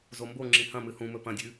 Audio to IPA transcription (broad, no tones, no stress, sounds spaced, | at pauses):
z o m b o ŋ͡ǁ ĩ h ɐ̃ m ɨ h ũ m ɵ p ɐ̃ dʲ ʉ